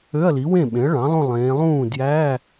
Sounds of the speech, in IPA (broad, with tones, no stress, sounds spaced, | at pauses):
ø˧˥˧ ɐ̯ l i˩˥ w ẽ˥˩ ɓ ẽ˩˥ ɐ̯ ɭ ɑ̃˩˥ lˠ õ˥˧ lˠ ẽː˩˧ lˠ ũː˥˩ d j æ˧˥˧